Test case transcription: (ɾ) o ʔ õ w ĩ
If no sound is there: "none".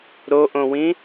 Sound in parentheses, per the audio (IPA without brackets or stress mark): ɾ